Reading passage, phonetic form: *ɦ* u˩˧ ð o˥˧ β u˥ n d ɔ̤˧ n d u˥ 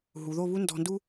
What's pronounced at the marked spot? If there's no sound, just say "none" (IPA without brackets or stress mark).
ɦ